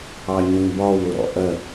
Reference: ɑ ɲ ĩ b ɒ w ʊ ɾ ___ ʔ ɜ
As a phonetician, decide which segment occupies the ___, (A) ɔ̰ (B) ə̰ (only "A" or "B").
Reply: A